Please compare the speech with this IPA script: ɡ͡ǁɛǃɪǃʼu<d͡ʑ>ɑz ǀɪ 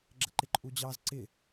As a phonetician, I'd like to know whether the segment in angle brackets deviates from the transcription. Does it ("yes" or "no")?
no